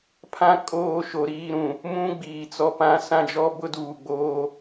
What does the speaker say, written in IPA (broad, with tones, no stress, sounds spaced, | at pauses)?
pʰ ã˦ kʼ oː˦˨ ʃ o˨ ɾ iː˦˨ ɾ ũ˨ | m ũ˦ ɡ͡b iː˨ t͡s ɔ˦˨ p ã˦ s ã˦ d͡ʒ ɔ˦ b ʊ˦ d uː˨ ɡ͡b oː˦